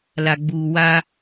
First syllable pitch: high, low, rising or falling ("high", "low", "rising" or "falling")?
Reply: low